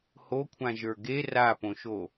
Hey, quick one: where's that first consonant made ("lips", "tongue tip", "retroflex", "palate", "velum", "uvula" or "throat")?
throat